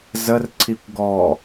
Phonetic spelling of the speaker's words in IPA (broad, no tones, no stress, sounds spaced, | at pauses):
z ə r ǀʰ i kʷ ɡ ɔ